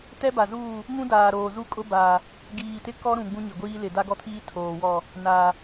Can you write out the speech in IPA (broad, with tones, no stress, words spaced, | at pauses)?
tɛ˦ba˨zuː˦˨ | ŋũ˦daː˨ɾoː˨ zu˦kʼʊ˦baː˨ | ɡiː˨tɪ˦kɔ˦ ɾũ˨ ɡ͡bũ˦ɲɪ˨ɡʷiː˦ lɪ˨da˦ɡɔ˦tʰiː˦ tʰoː˨wɔ˦˨ | naː˨